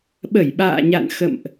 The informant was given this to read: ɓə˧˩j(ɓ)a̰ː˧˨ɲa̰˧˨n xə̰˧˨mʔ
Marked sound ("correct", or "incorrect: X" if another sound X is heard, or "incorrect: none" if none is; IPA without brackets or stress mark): correct